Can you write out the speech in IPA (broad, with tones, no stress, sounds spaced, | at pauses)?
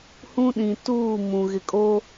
h ũ˦ ɗ ĩ˨ t uː˦˨ m ũ˨ ɣ ɪ˨ kʼ o˦